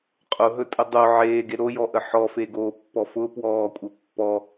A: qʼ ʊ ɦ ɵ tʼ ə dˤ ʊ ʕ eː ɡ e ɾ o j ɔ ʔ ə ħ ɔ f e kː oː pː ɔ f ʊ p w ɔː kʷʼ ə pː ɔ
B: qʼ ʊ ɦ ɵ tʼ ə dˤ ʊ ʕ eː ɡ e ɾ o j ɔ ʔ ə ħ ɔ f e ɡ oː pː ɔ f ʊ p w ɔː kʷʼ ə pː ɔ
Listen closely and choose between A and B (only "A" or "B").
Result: B